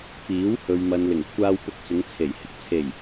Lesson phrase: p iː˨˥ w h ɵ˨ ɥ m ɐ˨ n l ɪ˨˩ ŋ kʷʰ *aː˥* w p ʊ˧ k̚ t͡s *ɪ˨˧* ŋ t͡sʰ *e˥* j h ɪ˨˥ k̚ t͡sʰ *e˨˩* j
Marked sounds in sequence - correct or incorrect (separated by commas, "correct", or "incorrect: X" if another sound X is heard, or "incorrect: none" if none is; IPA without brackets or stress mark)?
incorrect: aː˧, correct, incorrect: e˨˩, correct